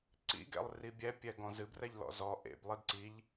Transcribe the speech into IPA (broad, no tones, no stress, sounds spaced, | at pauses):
ǀ ḭ ɡ ɛ̰ lˠ r i bʲ ɛ pʲ ɛ ɡ ɔ̃ z ɨ b r ɛ ʎ l ɔ̰ z ɔ ʔ ḛ b lˠ ɪ d ǀ i ʎ